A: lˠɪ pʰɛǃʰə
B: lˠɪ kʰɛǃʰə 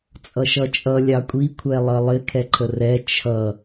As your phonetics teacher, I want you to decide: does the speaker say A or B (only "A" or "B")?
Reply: B